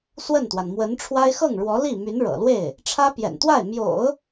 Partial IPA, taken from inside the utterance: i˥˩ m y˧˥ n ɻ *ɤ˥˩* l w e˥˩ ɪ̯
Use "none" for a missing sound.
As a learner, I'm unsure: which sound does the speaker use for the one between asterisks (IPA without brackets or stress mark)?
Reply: ɤ̰˨˩